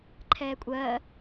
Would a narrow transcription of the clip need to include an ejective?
yes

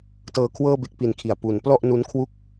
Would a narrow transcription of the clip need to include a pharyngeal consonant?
no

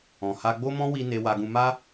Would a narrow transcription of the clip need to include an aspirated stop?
no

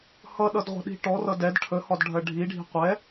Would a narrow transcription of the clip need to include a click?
no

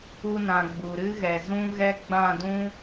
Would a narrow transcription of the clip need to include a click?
no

